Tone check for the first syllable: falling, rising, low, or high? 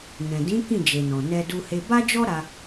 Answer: low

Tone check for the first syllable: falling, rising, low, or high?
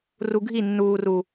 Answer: low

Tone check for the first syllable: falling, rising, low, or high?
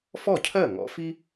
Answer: falling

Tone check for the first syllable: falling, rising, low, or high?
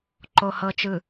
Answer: low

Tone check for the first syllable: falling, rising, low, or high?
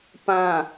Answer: low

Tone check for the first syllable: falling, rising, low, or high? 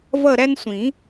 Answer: falling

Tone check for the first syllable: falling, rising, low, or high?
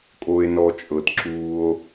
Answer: low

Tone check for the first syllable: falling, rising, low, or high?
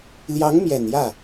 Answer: rising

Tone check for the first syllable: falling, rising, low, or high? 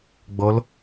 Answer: rising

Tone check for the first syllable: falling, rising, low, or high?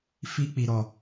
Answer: high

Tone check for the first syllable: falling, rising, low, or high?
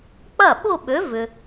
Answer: falling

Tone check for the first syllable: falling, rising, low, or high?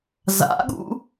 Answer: rising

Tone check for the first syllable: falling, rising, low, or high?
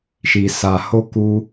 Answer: low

